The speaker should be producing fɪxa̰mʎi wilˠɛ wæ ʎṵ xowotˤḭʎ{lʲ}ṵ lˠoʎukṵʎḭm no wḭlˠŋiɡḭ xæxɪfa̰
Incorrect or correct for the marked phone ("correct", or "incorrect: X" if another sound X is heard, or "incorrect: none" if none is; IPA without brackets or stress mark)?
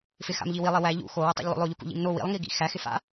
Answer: incorrect: lˠ